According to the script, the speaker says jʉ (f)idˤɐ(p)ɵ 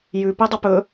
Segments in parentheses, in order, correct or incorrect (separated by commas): incorrect, correct